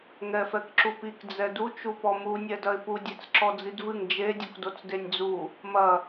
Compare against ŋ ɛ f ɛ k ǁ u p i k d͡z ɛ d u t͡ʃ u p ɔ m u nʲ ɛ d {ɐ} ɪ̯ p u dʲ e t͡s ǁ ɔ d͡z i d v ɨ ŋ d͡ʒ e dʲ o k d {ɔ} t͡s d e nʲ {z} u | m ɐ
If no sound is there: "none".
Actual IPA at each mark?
ɐ, o, d͡z

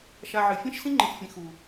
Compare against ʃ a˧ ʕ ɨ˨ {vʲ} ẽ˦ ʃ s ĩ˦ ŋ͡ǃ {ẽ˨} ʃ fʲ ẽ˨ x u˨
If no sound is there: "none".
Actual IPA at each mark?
fʲ, ẽ˨

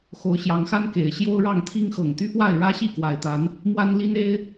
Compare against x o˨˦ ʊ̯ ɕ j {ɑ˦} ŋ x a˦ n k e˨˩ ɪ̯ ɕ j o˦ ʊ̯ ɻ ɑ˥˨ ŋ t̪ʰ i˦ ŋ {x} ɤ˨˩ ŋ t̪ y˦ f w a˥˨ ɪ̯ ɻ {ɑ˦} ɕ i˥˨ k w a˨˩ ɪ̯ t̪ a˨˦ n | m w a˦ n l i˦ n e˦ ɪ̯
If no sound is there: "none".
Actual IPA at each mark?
ɑ˨˦, x, ä˦

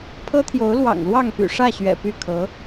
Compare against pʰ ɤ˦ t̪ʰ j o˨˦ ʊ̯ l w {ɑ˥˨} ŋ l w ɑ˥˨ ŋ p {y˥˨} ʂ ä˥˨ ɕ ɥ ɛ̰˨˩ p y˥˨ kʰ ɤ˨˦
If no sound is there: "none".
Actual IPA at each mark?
ɑ̰˨˩, y̰˨˩

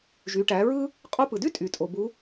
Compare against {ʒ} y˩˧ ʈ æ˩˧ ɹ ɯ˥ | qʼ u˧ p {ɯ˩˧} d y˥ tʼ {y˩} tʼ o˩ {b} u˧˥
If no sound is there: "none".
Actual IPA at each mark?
ʒ, ɯ˩, y˩, b

